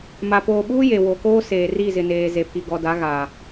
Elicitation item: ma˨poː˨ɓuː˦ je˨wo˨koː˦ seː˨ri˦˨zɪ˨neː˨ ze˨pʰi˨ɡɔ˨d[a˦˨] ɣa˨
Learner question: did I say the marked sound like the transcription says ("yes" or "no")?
no